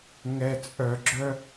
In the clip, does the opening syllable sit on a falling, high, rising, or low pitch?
low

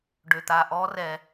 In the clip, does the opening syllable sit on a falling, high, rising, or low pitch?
low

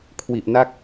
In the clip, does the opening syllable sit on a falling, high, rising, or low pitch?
low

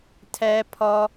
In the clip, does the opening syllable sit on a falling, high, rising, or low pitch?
high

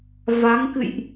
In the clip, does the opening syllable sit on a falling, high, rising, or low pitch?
rising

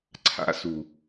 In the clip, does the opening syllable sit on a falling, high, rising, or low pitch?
high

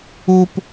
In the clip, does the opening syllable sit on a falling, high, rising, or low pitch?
high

